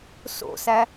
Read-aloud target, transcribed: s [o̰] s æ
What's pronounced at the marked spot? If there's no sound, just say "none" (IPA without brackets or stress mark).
o̰